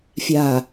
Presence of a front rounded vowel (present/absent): absent